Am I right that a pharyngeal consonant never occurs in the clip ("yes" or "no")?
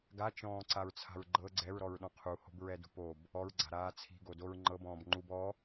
yes